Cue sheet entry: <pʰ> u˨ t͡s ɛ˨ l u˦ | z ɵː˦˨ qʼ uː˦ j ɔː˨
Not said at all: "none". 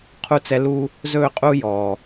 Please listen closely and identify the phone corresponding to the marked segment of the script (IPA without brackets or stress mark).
qʰ